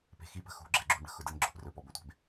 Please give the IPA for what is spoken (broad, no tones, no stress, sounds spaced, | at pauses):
p e̤ x i p ə̤ x ṳ ɡ͡ǁ ɛ ɡ͡ǁ ṳ n ɽ ə̤ x ʊ d ə n ɡ͡ǁ ʊ p r ɵ p ɔ b ɵ tʷ e̤ b